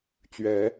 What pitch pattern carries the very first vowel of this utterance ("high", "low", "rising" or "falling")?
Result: rising